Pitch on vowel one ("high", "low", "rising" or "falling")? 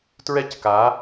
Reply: high